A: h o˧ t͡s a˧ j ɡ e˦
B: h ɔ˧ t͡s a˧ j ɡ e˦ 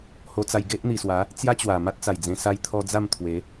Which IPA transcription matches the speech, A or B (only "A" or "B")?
A